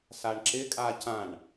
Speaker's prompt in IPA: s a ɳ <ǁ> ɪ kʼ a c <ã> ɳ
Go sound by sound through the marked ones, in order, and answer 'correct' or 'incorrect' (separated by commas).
correct, correct